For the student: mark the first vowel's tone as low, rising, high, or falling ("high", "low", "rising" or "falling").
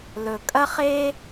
low